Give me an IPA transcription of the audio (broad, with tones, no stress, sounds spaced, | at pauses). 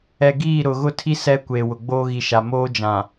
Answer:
ɛ˨ ɡ iː˦˨ ɾ ʊ˨ ɣ ʊ˦ tʰ i˦ s ɛ˦ kʷ eː˨ w ʊ˨ ɡ͡b oː˦ ɣ i˨ ʃ a˨ m oː˦ d͡ʒ ã˨